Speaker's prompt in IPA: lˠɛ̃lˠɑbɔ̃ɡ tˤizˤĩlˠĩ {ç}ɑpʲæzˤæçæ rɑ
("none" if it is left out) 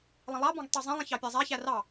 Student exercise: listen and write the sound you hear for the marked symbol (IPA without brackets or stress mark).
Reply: ç